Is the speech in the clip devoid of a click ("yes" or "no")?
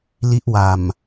yes